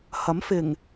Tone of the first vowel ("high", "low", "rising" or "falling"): rising